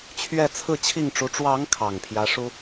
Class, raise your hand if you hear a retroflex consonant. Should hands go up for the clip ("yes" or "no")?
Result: yes